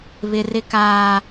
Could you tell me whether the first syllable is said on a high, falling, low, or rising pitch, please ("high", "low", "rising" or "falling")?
high